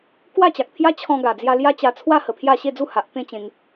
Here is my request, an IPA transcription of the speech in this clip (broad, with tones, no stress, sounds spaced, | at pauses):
k w a˥˧ t͡ɕ a˨ k̚ t̪ʰ j a˦ t͡ɕʰ ɔ̃˧ ɡ a˨˩ d͡z j a˧ l j a˦ t͡ɕ a˧ t͡sʰ w a˥˧ h ə˨˩ pʰ j a˥˧ ɕ e˥˧ d͡z u˥˧ h a˨ ʔ t̪ ẽ˥˧ t͡ɕ ẽ˧ ŋ